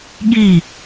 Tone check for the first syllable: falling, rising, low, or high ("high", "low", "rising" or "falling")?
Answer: falling